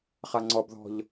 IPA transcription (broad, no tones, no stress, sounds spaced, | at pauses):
χ a ŋ͡ǀ ɔ b ð ɔ̤ ʎ